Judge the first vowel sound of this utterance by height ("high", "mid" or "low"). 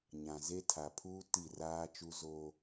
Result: low